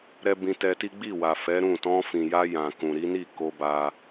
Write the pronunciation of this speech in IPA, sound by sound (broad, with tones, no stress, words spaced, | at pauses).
ɾɛ˧ bĩ˧tɛ˧ti˦ ɡ͡bi˦˨wa˨fɛ˨˦ ɾũ˦˨ tɔ̃˧fĩ˨ja˧ jã˨kũ˨ ɾi˨˦ni˦˨ ko˧ba˧